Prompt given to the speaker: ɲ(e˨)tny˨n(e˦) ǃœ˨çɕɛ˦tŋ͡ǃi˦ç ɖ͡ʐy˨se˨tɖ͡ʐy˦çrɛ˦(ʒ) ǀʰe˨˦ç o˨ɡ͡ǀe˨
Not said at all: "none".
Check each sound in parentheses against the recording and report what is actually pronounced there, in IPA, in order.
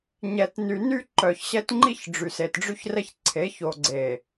ɛ˨, y˦, ç

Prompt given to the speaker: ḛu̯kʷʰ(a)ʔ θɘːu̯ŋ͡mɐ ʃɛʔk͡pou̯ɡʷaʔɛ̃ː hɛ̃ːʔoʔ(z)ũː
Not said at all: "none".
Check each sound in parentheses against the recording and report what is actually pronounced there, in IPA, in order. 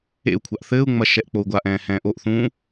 a, θ

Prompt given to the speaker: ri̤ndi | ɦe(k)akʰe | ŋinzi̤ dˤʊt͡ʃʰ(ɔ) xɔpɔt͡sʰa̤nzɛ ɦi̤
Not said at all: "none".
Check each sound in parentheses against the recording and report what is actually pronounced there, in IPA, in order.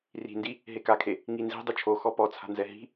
k, o

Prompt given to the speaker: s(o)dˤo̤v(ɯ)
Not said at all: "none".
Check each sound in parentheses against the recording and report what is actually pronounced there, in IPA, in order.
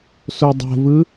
o, ɯ

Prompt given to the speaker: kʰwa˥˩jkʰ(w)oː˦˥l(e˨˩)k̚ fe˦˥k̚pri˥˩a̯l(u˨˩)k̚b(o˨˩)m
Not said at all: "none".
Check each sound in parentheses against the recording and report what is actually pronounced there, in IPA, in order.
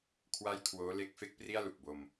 w, e˦˥, u˨˩, o˧

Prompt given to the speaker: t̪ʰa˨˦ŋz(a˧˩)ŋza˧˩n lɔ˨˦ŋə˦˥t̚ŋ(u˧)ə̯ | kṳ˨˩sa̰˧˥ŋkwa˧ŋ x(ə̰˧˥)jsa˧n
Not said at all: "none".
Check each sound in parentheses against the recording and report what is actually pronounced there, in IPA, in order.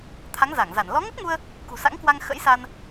a˧˩, u˧, ə̰˧˥

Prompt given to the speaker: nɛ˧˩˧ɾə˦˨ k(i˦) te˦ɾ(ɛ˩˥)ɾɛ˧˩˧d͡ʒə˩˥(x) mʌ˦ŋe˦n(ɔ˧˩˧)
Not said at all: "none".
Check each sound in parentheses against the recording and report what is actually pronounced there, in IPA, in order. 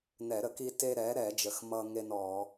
i˦, ɛ˩˥, x, ɔ˧˩˧

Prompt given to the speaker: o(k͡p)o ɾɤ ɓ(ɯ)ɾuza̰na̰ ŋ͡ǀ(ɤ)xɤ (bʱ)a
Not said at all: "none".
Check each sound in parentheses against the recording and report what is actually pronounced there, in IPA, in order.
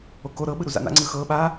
k, ɯ, ɯ, ɓ

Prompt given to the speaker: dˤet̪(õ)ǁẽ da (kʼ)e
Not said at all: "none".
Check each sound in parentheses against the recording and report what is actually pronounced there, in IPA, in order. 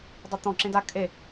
ɔ̃, kʼ

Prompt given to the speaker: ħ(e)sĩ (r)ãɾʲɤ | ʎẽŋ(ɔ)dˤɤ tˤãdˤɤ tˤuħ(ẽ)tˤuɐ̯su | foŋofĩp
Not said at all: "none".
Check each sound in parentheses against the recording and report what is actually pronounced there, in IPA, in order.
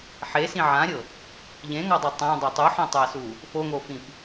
e, ʕ, ɔ, ĩ

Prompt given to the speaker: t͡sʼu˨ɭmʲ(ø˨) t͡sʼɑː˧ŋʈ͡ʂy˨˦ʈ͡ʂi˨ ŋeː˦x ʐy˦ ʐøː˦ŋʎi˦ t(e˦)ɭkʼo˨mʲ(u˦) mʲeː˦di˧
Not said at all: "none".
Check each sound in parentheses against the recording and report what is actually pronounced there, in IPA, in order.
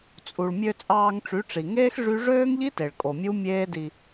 ø˧, e˨, u˦

